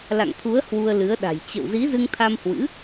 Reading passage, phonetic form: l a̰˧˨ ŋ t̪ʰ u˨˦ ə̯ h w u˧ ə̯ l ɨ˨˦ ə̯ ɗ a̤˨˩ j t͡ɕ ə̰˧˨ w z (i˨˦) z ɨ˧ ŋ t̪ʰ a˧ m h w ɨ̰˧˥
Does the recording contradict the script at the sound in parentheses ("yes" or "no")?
no